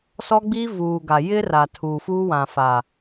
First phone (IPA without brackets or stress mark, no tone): s